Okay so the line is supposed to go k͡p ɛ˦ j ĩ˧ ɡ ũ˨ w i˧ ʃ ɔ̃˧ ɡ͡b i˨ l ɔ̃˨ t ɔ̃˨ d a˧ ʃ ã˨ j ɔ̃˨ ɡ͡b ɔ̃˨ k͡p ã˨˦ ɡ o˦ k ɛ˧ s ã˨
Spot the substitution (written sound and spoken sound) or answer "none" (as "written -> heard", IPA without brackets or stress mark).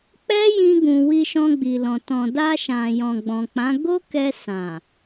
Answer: none